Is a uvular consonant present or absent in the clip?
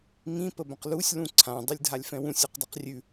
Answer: present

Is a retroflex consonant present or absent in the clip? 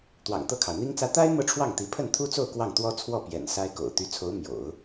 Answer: present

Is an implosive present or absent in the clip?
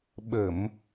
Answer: present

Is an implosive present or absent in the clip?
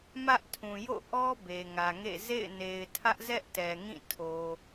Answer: absent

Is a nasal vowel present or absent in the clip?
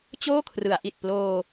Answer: absent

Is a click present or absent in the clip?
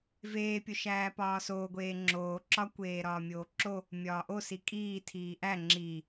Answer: present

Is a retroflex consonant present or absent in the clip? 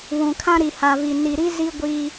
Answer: absent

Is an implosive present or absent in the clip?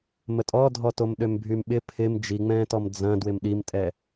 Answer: present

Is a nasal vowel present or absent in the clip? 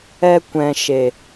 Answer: present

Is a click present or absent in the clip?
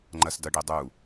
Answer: present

